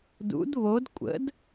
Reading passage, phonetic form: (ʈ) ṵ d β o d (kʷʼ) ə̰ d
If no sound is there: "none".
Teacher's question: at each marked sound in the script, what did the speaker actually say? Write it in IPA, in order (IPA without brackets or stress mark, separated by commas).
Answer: d, kʷʼ